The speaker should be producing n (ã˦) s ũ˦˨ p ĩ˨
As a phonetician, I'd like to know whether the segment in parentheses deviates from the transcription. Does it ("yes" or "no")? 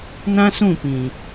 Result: no